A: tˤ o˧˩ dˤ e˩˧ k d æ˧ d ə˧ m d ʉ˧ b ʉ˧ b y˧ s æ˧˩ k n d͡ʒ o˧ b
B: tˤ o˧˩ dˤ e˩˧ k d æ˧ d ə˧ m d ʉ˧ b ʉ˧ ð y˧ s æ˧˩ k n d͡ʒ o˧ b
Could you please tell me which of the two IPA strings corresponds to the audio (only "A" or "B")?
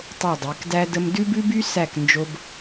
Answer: A